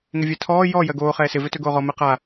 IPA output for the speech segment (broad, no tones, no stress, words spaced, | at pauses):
ŋɪvʲɛtʰɔː jɔ jɜɡoː χɛːsɪ vøtøɡoːʁɔ mɛqa